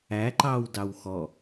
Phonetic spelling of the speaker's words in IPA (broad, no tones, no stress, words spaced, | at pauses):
æǃɑw dɑwxɔ